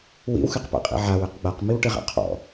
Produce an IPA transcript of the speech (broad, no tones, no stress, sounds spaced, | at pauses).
w ḭ w x ɨ q p a̰ qʼ ḭ ʕ a w ɨ q ɡ͡b a q m i w ʈ ɨ ʁ a̰ qʰ ɔ̰